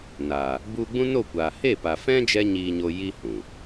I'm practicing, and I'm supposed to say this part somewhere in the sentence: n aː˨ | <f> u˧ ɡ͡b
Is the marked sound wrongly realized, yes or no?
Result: yes